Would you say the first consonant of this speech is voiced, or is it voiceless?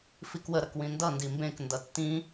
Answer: voiceless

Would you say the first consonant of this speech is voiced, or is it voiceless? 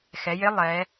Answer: voiceless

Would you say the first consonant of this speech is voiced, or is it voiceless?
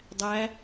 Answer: voiced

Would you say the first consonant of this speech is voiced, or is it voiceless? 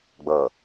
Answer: voiced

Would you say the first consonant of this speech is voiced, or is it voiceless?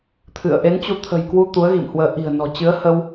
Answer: voiceless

